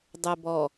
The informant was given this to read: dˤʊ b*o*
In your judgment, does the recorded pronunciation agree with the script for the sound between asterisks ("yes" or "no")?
no